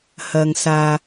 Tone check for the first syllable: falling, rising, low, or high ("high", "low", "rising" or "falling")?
low